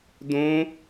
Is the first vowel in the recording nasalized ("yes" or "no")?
yes